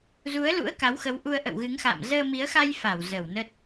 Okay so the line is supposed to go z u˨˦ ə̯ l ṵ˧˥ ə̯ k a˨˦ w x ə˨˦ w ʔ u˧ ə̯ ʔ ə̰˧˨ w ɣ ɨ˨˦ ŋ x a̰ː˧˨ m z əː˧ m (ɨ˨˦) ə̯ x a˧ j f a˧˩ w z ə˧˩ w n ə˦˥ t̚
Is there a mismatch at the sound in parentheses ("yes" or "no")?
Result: yes